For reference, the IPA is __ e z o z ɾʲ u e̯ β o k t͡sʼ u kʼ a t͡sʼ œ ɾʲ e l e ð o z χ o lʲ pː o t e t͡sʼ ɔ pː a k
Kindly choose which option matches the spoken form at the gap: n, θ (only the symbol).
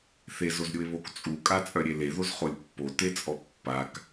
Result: θ